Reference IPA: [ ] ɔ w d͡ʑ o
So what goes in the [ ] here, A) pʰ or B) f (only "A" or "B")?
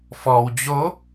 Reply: B